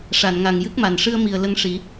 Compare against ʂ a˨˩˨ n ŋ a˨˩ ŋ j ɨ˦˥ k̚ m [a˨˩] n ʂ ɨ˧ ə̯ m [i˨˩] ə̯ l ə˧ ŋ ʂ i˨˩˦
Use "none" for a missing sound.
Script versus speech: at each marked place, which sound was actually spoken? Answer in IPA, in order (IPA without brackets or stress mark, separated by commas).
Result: a˨˩, i˨˩